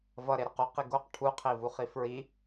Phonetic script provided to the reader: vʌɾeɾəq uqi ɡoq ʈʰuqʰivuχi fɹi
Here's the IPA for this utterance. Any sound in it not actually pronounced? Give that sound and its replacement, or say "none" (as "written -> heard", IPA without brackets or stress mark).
none